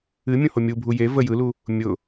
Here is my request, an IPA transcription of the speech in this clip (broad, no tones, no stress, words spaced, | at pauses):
ɨmʲũho mʲubʱu je və jɯlu | mʲʊ